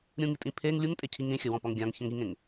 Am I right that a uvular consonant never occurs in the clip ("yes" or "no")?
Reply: yes